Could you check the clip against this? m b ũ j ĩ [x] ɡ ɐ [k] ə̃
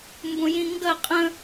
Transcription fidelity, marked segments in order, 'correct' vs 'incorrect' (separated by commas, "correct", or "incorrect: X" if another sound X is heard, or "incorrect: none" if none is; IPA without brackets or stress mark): incorrect: ŋ, incorrect: qʼ